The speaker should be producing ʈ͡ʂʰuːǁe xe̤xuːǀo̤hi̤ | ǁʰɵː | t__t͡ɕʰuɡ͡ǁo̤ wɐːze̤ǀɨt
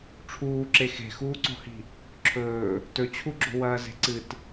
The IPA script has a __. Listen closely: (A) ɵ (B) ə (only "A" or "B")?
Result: A